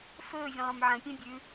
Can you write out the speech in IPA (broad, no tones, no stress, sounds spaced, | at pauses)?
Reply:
f ɵː vʲ ə̃ lˠ õ m ʕ ə̃ pʲ ẽ bʲ ʉ